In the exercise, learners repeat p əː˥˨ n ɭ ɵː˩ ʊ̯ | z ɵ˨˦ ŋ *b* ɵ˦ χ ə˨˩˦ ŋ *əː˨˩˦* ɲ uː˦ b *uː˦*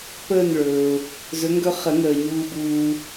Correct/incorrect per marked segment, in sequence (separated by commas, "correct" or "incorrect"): incorrect, incorrect, correct